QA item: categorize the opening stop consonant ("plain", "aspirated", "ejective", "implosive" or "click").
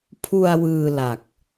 aspirated